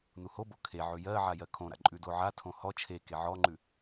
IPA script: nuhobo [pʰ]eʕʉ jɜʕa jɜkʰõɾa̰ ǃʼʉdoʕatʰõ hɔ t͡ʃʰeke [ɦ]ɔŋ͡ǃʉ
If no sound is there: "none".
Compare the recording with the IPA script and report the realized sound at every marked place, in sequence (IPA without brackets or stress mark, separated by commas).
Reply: kʰ, ʕ